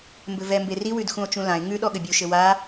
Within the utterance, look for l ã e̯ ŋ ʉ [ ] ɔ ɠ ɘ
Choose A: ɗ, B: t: A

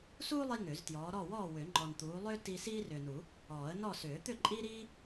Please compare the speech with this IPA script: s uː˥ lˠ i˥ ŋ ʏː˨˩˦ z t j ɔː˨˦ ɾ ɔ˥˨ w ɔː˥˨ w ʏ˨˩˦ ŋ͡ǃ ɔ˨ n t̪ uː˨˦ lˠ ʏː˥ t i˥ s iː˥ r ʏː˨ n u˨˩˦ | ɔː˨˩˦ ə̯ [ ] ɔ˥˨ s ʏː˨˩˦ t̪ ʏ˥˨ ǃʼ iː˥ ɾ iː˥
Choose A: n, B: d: A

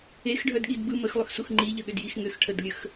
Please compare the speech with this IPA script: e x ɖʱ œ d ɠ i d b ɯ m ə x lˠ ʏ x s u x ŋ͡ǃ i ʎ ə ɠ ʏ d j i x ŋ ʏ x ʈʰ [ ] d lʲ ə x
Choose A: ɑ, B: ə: B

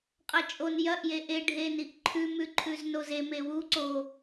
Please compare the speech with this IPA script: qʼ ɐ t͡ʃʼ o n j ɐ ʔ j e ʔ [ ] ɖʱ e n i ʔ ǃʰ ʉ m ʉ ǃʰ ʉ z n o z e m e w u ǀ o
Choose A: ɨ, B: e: B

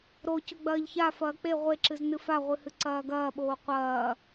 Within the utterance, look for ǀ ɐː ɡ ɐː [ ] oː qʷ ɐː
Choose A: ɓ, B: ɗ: A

